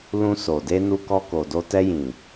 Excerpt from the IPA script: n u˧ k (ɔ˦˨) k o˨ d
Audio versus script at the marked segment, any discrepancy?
yes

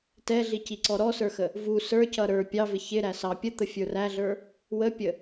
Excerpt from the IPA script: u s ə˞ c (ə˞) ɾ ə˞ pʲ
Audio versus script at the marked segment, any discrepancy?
yes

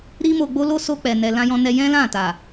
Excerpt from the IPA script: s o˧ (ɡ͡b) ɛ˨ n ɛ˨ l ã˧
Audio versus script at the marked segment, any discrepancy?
yes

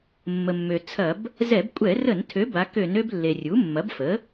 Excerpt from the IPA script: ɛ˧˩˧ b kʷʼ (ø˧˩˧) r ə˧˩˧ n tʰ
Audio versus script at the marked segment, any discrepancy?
yes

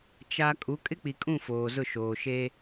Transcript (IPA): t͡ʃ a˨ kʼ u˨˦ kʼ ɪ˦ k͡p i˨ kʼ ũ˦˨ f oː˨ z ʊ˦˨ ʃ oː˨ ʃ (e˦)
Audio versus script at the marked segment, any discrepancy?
no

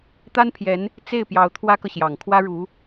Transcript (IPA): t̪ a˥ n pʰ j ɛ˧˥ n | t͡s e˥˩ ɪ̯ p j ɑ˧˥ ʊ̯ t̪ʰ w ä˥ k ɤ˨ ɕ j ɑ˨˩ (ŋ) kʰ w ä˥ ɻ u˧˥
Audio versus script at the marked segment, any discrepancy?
no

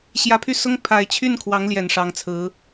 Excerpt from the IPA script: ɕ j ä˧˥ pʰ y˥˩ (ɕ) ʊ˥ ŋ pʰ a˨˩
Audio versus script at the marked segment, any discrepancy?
yes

